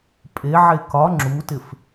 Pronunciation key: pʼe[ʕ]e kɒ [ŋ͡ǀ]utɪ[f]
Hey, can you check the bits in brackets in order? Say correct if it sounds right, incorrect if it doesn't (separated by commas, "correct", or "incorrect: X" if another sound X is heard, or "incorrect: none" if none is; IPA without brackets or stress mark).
correct, incorrect: ŋ͡ǁ, correct